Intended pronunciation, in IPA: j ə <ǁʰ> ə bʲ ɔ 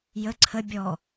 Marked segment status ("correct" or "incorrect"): incorrect